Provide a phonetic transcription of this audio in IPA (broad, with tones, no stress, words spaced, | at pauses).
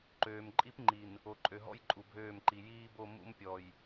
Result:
ǃøː˨m ǃʼi˦p ŋ͡ǃi˨n | o˨ǃʼø˨ɦɔ̰˦j ǃʼu˨bʱøː˦˨mǃi˨ jiː˦bo˦˨ mṵ˦mpʲɔ˨j